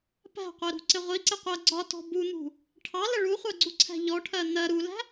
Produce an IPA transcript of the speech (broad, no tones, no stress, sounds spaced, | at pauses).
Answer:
p æ̤ qʷ ɛ ɾ ṳ ǀ ɪ ʁʷ i ǀ ɪ qʷ ɜ ɡ͡ǀ ɒ t ɔ̤ b u n̪ ṳ | ʈʰ ɑ l ə ɭ u χʷ ɜ ɡ͡ǀ u ǀʰ æ̤ ʎ ɔ ʈʰ ɜ n̪ ɜ ɾ u l æ̤